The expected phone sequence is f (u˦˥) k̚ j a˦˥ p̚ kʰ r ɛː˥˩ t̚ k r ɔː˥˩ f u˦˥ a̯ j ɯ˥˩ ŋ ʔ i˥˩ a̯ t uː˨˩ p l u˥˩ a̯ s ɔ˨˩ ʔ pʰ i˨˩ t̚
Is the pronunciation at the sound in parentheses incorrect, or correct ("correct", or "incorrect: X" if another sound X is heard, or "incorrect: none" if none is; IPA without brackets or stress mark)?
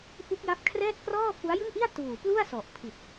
correct